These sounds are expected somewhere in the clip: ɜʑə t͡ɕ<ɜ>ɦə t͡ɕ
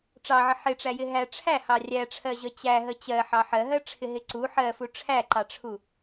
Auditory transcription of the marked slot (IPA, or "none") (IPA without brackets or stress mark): æ